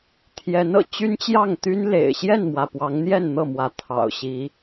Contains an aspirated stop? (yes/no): yes